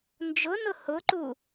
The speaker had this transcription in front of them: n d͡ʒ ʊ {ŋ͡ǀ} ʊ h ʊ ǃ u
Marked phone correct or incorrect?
incorrect